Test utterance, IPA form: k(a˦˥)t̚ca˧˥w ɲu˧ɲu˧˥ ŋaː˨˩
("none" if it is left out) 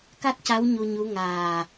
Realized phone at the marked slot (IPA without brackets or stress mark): a˦˥